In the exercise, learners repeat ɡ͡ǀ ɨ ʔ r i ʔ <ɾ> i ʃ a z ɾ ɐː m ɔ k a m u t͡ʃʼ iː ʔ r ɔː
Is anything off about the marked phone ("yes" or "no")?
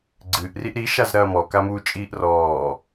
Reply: no